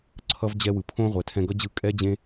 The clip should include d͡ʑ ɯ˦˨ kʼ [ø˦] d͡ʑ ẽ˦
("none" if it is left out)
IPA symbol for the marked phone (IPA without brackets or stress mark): ɛ˦